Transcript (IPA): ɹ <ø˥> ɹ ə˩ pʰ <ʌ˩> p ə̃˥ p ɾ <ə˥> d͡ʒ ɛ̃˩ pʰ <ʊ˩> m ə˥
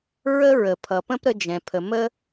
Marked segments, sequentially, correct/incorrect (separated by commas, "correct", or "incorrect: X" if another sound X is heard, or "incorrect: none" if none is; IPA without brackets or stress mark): incorrect: ə˥, correct, correct, incorrect: ə˩